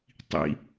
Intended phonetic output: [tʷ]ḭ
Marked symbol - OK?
no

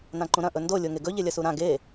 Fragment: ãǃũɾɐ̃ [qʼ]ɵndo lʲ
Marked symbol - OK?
no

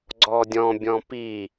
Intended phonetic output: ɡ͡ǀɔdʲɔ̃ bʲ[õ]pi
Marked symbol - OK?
no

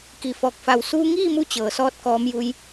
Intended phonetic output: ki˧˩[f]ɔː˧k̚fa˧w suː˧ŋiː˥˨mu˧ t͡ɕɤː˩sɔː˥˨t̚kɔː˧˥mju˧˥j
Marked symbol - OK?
yes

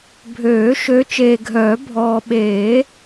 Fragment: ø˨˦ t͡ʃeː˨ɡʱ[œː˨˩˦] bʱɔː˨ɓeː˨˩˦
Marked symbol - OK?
yes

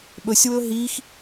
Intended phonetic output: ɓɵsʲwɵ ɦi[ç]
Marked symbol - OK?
no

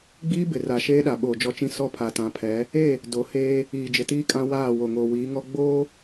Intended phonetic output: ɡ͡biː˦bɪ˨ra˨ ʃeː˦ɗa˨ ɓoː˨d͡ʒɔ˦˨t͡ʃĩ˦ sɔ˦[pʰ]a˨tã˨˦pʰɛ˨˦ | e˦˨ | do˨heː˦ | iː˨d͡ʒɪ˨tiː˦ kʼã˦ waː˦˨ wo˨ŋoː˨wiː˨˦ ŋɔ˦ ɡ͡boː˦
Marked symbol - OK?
yes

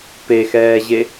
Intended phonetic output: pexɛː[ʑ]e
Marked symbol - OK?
yes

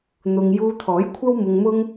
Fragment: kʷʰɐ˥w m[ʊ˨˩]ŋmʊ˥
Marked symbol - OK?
no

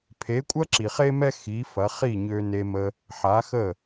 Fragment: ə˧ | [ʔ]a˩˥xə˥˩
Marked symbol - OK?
no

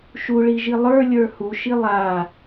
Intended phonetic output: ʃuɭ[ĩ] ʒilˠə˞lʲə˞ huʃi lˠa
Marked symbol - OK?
no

